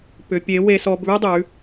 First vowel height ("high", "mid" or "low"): high